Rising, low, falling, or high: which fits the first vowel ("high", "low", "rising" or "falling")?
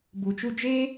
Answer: low